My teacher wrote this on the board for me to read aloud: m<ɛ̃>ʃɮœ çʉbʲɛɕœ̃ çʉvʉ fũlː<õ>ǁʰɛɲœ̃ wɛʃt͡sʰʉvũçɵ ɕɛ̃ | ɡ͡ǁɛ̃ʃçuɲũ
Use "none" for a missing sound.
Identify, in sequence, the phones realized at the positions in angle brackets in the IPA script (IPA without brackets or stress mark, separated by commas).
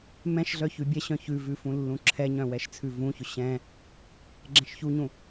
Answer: ɛ̃, ũ